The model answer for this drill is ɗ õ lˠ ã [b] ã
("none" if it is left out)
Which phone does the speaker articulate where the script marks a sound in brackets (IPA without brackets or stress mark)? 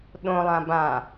b